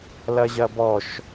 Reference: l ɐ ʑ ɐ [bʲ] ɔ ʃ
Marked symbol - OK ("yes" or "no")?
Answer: no